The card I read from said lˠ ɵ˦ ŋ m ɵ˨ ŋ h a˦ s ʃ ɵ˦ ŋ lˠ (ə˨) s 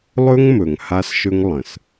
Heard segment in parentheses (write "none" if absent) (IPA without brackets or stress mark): ə̃˨